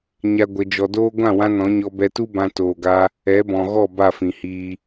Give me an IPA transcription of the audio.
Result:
ɲ a˦ ɡʷ ə˧ d͡ʒ ɔ˧ d oː˦ ɡʷ ã˦˨ w ã˧ n ɔ̃˨˦ ɲ ɔ˧ b ɛ˧ t u˦ b ã˧ t oː˨ ɡ a˧ | ɛ˨˦ b ɔ̃˨ ɣ ɔ˦˨ b a˦˨ f ĩ˨ h iː˧

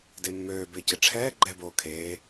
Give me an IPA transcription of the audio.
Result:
d e mː øː b ɪː c ɪ ʈ͡ʂʰ ɛː ɡ͡ǃ ɛ b oː kʰ eː

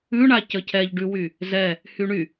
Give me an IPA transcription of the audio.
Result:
ʉ ɳ a c ə cʰ ɛ ʎ ɖ ʉ w y | z ɛ | h y ɳ y

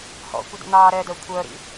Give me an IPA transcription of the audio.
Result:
h ɔ̰ kʷ ə d ə̰ n̪ ɑː ɾ ɛ d œ kʷʰ œ ɾ ḭ

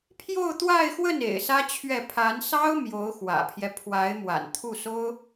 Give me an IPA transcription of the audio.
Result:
pʰ j o˥˧ ʊ̯ t̪ w a˥˧ ɪ̯ x w ə˥˩ n ḛ˨˩ ɪ̯ s ä˥ t͡ɕʰ ɥ ɛ˥˩ pʰ a˧˥ n s ɑ˥ ʊ̯ m j o˧˥ ʊ̯ x w ä̰˨˩ pʰ j ɛ˦ pʰ w a˧˥ ɪ̯ m w a̰˨˩ n t̪ʰ u˥˩ s o˥ ʊ̯

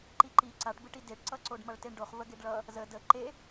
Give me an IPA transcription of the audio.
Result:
ǃ i ǃ i ǀ a ʈ b ɯ ʈ i d e ʈ ǀ ʌ ǀ o ɖ m ʌ ɭ t e ɳ ɖ o χ v ə ɡ e ɖ ɭ ʌ | z ə d ə ǃ e

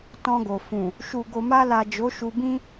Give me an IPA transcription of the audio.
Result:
t ɔ̃˧ ɡ o˨ f ũ˨ | ʃ u˨ ɡ o˨ m a˧ l a˨ d͡ʒ o˨˦ ʃ u˧ b ĩ˦

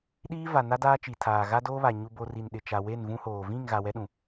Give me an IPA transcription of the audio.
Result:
ɗ iː˦ v a˨ n a˦ d aː˦ t͡ʃ i˨ tʰ aː˨ ɣ a˦ d oː˦ β a˨ ɲ u˨ b o˨ r i˨ n ɗ ɪ˨ t͡ʃ a˨ w e˦˨ n v ũ˦ h oː˨ v ĩ˦˨ ŋ ɣ a˨ w ɛ˦ ɗ ũ˨

